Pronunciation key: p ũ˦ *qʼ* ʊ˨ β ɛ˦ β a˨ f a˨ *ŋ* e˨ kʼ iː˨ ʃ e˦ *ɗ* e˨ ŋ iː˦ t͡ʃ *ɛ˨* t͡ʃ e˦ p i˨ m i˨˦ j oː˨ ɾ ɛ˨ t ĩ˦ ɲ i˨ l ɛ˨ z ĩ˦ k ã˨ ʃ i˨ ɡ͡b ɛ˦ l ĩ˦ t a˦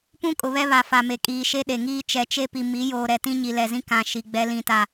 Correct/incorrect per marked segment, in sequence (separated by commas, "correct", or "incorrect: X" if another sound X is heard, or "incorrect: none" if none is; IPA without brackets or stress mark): incorrect: kʼ, incorrect: m, correct, correct